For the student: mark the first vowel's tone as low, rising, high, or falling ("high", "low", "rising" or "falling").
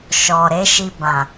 low